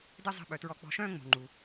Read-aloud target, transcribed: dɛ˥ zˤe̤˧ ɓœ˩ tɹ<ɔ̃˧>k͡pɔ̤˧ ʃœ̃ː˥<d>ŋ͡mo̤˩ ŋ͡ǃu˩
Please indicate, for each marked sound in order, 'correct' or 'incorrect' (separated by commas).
incorrect, incorrect